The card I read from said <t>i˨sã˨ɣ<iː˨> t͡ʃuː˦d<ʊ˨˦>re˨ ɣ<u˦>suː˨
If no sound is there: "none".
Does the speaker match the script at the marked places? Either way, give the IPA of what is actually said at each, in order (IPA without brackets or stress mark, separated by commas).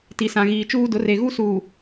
t, iː˨, ʊ˨˦, u˦